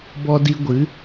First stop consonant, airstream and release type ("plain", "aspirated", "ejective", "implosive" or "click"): plain